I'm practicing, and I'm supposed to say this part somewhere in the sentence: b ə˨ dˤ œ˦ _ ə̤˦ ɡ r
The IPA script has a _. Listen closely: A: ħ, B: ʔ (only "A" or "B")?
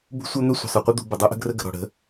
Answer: B